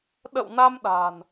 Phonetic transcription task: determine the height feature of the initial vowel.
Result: mid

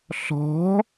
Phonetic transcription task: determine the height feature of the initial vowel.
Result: mid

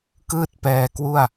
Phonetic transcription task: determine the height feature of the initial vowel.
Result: high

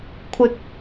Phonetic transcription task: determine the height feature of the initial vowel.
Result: high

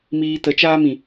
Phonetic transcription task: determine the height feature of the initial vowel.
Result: high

